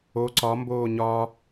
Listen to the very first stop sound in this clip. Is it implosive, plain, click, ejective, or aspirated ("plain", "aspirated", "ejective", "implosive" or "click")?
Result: click